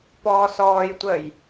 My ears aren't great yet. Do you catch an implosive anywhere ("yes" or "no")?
no